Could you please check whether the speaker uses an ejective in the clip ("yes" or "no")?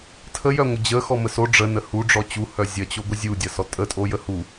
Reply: yes